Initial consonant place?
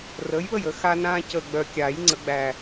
alveolar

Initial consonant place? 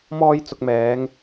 labial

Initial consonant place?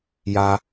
palatal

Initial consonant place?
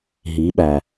glottal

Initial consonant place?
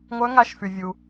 velar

